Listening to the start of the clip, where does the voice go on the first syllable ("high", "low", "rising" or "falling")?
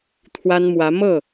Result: high